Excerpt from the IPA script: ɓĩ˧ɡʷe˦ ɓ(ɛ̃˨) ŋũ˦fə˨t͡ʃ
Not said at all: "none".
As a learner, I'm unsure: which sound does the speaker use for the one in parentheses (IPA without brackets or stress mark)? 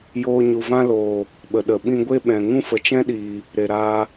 ɛ̃˨